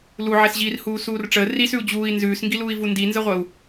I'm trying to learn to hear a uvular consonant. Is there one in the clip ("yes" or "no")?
yes